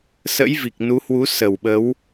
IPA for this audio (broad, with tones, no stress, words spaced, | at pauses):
sə̰˧˥jvi˨˩k̚ nu˨˦hwu˨˦ sə˨˩wɓə˨˦w